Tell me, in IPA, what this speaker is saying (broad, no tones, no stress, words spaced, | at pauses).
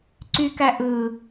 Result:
ǀykæʔɯ